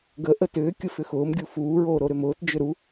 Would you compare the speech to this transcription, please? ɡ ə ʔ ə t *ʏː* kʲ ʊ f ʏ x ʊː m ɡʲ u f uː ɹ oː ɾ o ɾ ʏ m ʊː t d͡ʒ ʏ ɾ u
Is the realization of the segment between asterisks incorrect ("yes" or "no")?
no